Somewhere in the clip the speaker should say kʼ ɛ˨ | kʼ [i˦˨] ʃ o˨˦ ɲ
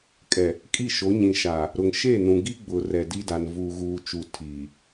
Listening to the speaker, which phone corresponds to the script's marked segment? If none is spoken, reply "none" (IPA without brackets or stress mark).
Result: i˦˨